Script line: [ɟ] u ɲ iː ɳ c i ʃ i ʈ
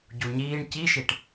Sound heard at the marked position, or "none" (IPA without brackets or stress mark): ɟ